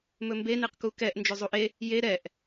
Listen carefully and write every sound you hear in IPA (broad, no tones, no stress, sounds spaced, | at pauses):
m ɵ m b e n e q k u k ɛ ʔ n d͡ʒ ɵ zˤ u ʔ e | j e ɾ ɛ ʔ